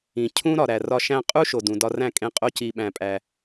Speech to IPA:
ĩ˨ cʰ ũ˦ ɾ ɒ˨ ɾ æ˨ r ɒ˧ ʃ æ̃˧ qʼ u˦ ʃ o˨ d ũ˨ d ɒ˧ r æ̃˦˨ kʼ ẽ˦ qʼ o˦ c i˧ ɓ æ̃˧ pʼ æ˧

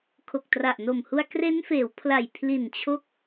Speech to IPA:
kʰ o˨˩ k̚ t r a˨˩ ʔ n o˨˩ m h u˧ a̯ k r e˦˥ n f eː˩˦ w pʰ l a˨˩ j pʰ l i˨˩ n t͡ɕʰ o˦˥ k̚

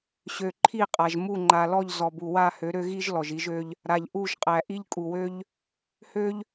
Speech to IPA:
ɕ ø˨ ǃʰ i˦˨ qʼ a˨ ʒ m u˦˨ ŋ͡ǃ a˨ l ɔ˦˨ ʎ z ɔ˨ b u˨ w a˦˨ h ø˨˦ ɾ ø˦ ɣ i˦ ʒ l ɔ˨ ʒ i˦ ʒ ø˦ ʎ | ɾ a˨ ʎ ʔ u˦˨ ʒ qʼ æ˨ ʔ i˦ ʎ kʼ u˨ w ø˦ ʎ | h ø˦ ʎ

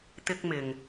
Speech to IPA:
t̪ ɪ˥ k̚ m ɪ˨ ŋ

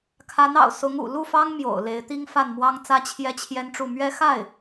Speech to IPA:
kʰ a˧˥ n ɑ̰˨˩ ʊ̯ s ʊ˧˥ ŋ ṵ˨˩ l u˥˩ f ɑ˥ ŋ m j o̰˨˩ ʊ̯ l e˧˥ ɪ̯ t̪ i˥ ŋ f a˥˩ n m w ɑ˥ ŋ t͡s ä˥ t͡ɕʰ j ɛ˥ t͡ɕʰ j ɛ˥ n ʈ͡ʂ u˥˩ m ɥ ɛ˥ x a˥˩ ɪ̯

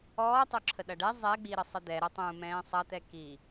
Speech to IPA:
ɔː tˤ œ ǁʰ ə ɗ ɐ ɖ ɛ zˤ ɛ ɡ͡b i ɾ ə sˤ ə d̪ ɛ ɾ ə tˤ ũː m ɛ̃ː sˤ ɐ t̪ ɛ k i

